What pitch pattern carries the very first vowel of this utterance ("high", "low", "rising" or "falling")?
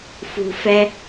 low